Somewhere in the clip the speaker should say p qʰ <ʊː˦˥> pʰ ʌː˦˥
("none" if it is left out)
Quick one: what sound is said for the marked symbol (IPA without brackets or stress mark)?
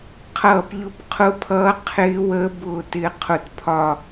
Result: ʊ˦˥